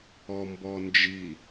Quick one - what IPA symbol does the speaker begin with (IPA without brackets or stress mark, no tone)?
ɔ